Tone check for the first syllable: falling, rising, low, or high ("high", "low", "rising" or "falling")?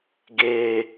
high